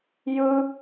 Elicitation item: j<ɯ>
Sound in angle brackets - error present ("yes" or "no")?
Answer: no